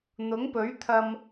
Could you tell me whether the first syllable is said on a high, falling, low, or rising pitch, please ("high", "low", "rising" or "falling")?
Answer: rising